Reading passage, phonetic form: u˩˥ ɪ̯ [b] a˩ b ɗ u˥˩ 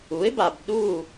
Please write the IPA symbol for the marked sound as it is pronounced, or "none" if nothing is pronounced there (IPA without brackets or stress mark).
b